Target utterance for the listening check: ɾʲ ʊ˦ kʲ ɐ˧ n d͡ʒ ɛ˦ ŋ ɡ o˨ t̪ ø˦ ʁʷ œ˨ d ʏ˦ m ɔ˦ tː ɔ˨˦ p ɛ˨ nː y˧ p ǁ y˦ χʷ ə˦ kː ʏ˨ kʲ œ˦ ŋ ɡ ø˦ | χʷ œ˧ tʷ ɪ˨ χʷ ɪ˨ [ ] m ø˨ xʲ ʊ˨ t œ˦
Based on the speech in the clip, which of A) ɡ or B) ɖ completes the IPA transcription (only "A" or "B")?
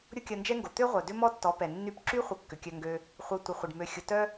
B